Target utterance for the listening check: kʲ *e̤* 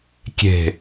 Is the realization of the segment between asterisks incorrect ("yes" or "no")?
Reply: no